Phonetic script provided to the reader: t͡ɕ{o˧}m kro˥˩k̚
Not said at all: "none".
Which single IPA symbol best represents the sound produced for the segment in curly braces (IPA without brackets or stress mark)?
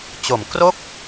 o˨˩